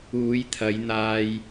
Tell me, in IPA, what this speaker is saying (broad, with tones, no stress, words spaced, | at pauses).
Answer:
uː˨˧jt̪ʰɐ˨˧jn̪aː˧j